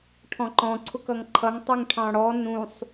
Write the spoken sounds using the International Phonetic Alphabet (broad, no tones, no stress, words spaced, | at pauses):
ʈʰɔ̃ǃɔ̃ ǀʰʊkʌŋǃʰʌŋ tˤuŋʈʰɑ̃ɽɔ nũsˤ